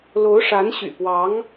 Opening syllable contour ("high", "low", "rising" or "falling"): rising